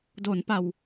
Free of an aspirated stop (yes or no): yes